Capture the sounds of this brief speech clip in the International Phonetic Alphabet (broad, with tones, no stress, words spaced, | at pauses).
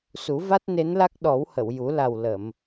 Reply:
su˨˩˦va˦˥t̚ne˧˥nla˦˥k̚ ɗɔ˨˩˦whə˨˩˨wju˨˩˦ la˨˩w lə˨˩˨m